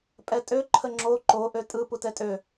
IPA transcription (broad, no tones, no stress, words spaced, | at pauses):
pʼɛtʼø ǃʰəŋ͡ǁo ǃo ʔøtʼɯ putɛtʼø